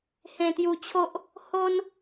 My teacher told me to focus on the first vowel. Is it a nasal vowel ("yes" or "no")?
yes